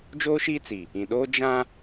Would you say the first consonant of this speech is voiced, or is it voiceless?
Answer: voiced